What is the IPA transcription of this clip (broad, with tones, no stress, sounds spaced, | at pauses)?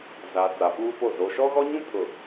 z a˨ t͡s a˨ p uː˦ p o˦˨ z o˨ ʃ ɔ˦ ɣ ɔ˦ ɲ ũ˦ pʰ ʊ˨